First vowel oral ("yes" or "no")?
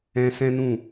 no